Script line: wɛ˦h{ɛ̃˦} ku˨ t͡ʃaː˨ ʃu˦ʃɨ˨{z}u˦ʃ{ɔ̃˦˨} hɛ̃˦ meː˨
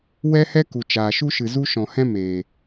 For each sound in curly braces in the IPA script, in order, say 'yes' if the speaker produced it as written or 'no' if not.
no, yes, no

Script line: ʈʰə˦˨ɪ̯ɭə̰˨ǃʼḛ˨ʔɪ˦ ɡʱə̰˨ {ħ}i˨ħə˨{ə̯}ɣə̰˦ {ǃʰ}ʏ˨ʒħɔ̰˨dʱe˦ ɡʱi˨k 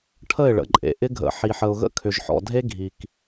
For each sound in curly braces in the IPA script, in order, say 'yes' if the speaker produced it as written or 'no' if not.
yes, no, no

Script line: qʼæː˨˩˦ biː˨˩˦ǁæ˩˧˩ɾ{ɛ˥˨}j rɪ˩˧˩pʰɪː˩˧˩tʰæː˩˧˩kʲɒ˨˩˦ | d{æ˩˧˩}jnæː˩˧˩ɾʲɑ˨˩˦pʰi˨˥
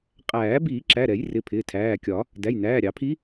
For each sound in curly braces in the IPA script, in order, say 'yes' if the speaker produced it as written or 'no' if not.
no, yes

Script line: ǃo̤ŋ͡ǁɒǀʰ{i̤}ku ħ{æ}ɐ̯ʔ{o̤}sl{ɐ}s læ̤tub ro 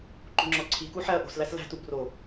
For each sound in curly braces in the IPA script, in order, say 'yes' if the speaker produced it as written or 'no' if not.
no, yes, yes, no

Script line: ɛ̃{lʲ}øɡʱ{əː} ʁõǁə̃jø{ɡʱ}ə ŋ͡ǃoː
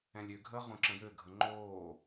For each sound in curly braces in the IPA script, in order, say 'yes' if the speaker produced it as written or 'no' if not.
yes, yes, yes

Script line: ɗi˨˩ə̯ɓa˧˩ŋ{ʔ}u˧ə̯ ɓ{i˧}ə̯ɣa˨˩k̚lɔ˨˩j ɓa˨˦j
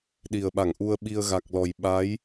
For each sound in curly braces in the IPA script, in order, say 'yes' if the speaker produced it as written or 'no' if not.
yes, yes

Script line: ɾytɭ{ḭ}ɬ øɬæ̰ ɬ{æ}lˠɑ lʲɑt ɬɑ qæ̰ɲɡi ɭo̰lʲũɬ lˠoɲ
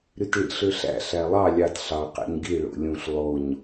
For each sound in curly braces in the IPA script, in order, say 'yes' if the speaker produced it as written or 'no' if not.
yes, yes

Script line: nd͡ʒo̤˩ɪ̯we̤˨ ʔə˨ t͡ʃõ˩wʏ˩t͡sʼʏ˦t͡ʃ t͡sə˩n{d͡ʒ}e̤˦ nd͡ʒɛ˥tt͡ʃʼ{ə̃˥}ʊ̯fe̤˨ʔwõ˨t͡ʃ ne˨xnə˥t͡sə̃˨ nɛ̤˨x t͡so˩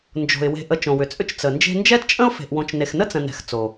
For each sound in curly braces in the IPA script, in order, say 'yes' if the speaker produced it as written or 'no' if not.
yes, yes

